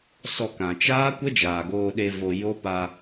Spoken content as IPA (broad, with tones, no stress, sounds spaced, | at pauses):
s ɔ˧ k ã˨ t͡ʃ aː˦ kʷ ə˦ d͡ʒ aː˨ ɡ oː˧ ɗ e˧ v o˧ j o˦ p a˧